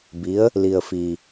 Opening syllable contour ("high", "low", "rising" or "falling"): rising